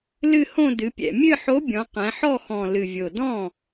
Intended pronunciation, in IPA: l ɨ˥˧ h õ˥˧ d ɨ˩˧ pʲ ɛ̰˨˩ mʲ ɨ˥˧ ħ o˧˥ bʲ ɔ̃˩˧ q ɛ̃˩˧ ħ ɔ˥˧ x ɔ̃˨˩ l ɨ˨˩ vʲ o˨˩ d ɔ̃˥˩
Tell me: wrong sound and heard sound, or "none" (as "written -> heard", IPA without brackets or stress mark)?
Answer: none